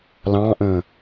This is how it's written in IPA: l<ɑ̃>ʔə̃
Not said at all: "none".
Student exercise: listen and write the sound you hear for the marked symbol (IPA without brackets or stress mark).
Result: ɑ̃